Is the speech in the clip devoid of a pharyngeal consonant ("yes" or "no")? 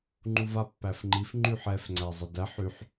no